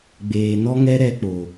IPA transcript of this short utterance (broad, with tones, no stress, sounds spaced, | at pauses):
ɡ͡b eː˨ n ɔ˦ ŋ ɛ˦ ɾ ɛ˧ k͡p oː˨